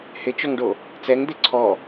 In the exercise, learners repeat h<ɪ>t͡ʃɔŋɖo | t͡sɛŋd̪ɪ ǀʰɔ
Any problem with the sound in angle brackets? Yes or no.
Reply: no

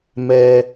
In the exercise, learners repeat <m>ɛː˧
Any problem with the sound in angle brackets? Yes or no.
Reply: no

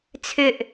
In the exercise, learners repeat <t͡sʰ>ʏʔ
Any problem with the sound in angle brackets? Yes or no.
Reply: no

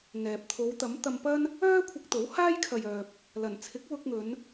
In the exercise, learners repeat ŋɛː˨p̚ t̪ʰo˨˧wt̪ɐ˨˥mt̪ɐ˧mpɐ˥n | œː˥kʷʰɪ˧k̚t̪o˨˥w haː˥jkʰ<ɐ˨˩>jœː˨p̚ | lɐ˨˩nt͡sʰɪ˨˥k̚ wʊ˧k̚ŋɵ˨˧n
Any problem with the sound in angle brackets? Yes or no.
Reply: yes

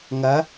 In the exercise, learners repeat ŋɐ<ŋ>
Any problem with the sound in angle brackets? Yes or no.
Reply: yes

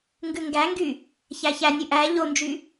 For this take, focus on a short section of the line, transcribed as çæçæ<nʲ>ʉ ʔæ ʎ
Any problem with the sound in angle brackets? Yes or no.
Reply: no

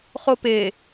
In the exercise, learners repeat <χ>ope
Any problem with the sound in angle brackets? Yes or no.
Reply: no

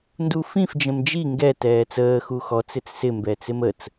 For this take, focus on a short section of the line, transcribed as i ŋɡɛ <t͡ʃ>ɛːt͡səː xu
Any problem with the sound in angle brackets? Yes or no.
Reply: yes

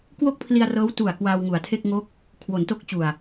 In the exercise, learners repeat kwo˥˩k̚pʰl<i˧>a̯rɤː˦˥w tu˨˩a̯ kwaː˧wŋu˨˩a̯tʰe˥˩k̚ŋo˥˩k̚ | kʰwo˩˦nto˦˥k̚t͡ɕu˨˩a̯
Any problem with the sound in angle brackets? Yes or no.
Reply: no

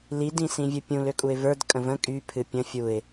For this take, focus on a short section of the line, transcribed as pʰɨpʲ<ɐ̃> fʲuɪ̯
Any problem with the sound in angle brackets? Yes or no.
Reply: yes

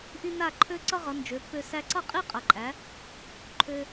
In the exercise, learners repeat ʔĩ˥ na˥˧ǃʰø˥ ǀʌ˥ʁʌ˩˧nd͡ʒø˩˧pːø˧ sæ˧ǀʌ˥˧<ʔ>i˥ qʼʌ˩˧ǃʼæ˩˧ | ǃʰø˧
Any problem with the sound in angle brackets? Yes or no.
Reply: yes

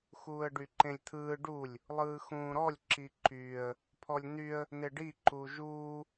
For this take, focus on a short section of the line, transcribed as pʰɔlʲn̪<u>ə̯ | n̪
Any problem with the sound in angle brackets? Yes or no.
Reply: yes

